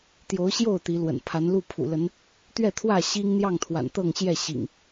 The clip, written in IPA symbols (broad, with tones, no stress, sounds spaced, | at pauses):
t̪ j o˨˦ ʊ̯ ɕ j o˥˨ ʊ̯ t̪ i˨˦ l w ə̰˨˩ n pʰ a˨˦ n l u˥˨ pʰ ṵ˨˩ l ə˨˦ n | t̪ ɥ ɛ˥˨ t̪ʰ w ä˥˨ ɕ i˦ ŋ n̪ j ɑ˥˨ ŋ t̪ʰ w a̰˨˩ n t̪ ɤ˥˨ ŋ ɕ j ɛ˥˨ ɕ ḭ˨˩ ŋ